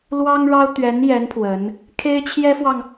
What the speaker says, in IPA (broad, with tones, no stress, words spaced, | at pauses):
lwɑ˥ŋɻɑ˥ʊ̯ t̪ɥɛ˧˥njɛ˧˥n pʰwə˧˥n | kʰe˥ɪ̯t͡ɕʰjɛ˥fwɑ˨ŋ